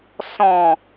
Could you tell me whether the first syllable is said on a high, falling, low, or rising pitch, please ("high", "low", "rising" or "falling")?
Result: low